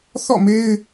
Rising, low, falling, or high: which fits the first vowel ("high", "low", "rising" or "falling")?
falling